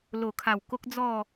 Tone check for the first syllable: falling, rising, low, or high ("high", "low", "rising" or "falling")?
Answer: low